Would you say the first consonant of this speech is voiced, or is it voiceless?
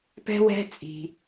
voiceless